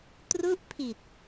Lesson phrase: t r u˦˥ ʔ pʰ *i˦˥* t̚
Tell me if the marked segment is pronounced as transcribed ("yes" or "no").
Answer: no